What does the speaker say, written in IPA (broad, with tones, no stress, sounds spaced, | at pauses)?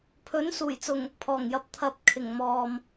pʰ ɵ˨˥ n s uː˨˩ j t͡s ʊ˨˩ ŋ | pʰ ɔː˨˩ ŋ j ɐ˨˥ p̚ t̪ʰ ɐ˧ p̚ kʰ ɪ˨˩ ŋ m ɔː˨ m